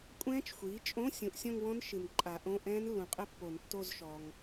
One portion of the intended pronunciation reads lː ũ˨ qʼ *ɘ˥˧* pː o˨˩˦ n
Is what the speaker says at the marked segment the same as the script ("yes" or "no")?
yes